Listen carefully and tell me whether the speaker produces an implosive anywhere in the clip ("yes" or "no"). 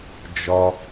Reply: no